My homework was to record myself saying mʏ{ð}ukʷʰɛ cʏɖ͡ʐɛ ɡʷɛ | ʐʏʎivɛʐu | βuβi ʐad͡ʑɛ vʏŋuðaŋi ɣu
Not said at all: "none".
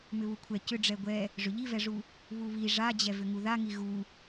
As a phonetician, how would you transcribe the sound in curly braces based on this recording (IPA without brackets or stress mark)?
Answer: β